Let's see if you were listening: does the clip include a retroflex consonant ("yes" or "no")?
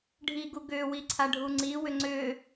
yes